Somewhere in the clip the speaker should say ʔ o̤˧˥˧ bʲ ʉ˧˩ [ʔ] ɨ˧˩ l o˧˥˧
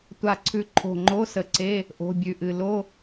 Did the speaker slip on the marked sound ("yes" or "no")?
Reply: no